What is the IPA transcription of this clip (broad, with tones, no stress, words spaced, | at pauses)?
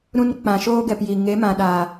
ɾũ˧n k͡pã˨ʃoː˦ ɡɛ˨pji˨ ŋe˨˦mã˨ɗaː˨